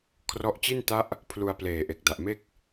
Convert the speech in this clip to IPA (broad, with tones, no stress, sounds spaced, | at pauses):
kʰ r ɔ˦˥ ʔ t͡ɕ i˥˩ n t a˥˩ ʔ | pʰ l u˧ a̯ p l eː˨˩ ʔ e˨˩ k̚ d a˨˩ ʔ m e˥˩ k̚